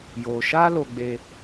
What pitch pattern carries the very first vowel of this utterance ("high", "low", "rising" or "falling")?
low